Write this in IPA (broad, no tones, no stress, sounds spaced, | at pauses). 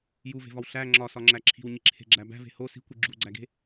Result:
j u v e̤ v ɒ w ɬ æ ŋ͡ǁ ɒ s ɒ ŋ͡ǁ æ ǁʰ i̤ w ɲ i ǁʰ e̤ ɡ͡ǁ æ b æ̤ v e̤ h o s i̤ kʷ i ɡ͡ǁ u ɡ͡ǀ æ ɡ e̤